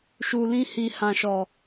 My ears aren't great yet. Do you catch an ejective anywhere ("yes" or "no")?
no